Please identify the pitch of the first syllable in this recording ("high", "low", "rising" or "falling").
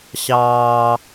high